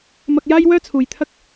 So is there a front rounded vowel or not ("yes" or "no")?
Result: yes